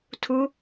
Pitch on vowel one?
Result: rising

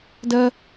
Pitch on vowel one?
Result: high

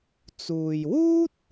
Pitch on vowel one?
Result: low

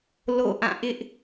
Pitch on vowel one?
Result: falling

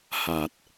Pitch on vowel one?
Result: low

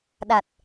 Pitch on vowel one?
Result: low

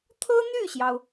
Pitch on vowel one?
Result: high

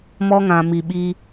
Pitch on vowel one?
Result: high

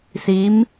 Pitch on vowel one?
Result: rising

